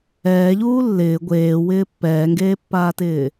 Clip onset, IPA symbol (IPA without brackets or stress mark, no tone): ɛː